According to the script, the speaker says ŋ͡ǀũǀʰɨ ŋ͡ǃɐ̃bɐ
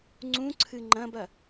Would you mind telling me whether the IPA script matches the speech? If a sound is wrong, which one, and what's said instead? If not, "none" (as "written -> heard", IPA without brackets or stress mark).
none